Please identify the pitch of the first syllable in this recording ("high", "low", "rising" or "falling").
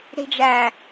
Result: low